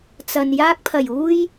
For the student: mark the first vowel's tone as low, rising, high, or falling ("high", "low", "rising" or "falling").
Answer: low